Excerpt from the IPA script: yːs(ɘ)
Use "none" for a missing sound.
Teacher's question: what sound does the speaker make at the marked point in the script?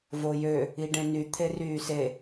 e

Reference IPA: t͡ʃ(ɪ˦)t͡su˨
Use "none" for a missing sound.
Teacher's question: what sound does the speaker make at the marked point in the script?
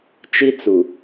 i˦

